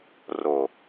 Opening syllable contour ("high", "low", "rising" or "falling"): low